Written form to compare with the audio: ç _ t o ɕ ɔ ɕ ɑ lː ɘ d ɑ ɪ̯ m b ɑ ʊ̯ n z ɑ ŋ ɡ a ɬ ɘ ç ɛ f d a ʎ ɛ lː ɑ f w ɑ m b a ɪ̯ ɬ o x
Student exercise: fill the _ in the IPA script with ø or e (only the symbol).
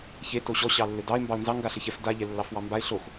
e